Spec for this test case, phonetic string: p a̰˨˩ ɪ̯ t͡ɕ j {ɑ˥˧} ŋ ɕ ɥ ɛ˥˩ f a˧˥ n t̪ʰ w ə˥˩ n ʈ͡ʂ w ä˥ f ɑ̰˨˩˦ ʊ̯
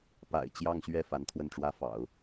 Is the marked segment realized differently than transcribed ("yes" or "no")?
no